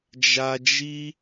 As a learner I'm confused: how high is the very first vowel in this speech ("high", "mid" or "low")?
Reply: low